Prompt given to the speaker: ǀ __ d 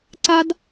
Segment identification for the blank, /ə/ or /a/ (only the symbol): a